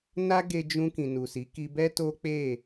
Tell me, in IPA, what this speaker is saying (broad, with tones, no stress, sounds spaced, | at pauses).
n a˦ ɡ e˧ d͡ʒ ũ˧ k ĩ˨ n u˨ s i˨˦ k i˧ b ɛ˦ t o˦ k͡p e˦˨